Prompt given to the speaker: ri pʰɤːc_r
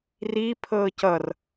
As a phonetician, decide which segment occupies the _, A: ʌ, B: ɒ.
A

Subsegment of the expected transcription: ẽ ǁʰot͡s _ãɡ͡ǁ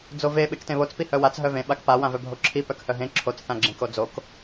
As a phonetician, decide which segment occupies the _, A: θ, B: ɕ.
A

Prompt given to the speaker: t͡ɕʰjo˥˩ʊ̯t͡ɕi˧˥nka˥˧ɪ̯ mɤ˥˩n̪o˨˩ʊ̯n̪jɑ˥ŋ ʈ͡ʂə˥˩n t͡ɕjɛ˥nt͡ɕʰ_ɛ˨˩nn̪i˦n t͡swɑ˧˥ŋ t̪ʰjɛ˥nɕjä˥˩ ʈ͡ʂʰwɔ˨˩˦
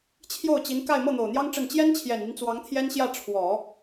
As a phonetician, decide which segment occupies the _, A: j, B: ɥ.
A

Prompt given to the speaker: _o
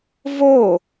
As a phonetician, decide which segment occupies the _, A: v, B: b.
A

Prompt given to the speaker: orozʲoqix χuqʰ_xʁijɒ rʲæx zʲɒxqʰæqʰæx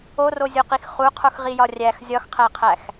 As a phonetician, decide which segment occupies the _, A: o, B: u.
A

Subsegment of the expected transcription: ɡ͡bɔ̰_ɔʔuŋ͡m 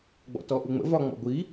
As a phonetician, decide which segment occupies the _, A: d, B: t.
B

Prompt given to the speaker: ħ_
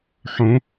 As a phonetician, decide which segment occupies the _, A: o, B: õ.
B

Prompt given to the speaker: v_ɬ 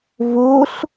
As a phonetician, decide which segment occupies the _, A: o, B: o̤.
A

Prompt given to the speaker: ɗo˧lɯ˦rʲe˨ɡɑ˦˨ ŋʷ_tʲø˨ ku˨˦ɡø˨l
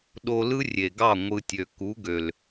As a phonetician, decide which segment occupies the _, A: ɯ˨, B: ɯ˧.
B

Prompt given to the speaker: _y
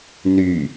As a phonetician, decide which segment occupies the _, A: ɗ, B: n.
B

